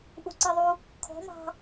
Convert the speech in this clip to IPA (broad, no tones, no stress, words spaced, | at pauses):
ʔuǀiðˤu | kʰɔ̤ mɑ̤